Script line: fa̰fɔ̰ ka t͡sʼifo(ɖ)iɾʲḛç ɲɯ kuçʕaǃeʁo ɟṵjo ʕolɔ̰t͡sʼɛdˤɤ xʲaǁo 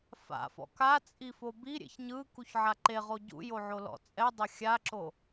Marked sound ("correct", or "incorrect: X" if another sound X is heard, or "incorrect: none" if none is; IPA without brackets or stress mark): incorrect: b